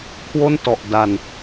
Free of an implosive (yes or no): yes